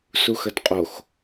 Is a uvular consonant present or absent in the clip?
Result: present